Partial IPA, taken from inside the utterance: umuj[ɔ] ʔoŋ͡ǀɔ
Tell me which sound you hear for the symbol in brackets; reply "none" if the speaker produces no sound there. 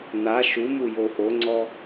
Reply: o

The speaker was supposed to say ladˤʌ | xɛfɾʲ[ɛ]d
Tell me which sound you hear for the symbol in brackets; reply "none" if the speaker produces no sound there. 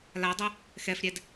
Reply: ɛ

